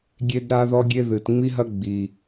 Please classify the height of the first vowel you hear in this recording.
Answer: mid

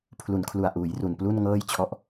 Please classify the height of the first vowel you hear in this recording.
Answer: high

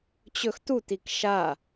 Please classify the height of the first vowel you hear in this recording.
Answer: mid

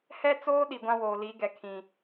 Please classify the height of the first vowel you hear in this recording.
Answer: mid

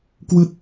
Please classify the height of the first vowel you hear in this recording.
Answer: high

